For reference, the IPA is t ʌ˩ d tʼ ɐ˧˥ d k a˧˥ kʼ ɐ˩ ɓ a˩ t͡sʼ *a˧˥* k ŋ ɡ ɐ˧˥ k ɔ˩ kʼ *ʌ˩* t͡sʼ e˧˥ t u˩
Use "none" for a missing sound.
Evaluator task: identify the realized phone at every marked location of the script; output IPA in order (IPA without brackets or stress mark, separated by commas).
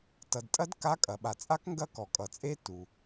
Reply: a˧˥, ʌ˩